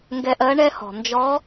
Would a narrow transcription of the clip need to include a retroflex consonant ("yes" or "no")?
yes